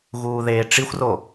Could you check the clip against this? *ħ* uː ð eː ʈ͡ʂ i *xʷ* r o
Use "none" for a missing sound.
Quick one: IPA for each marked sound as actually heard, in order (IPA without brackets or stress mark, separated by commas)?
ɣ, xʷ